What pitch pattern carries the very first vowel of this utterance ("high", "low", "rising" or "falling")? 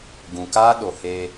low